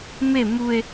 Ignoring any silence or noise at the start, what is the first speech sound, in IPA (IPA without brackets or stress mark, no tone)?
m